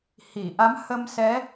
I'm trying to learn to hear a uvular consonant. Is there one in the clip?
no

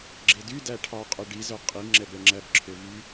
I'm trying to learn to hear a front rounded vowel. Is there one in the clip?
yes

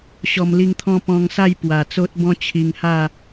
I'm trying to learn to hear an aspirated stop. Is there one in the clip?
yes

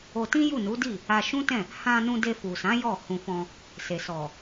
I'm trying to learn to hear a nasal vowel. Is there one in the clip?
yes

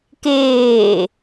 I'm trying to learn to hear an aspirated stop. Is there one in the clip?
no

